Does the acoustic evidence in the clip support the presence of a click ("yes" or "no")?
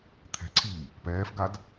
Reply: yes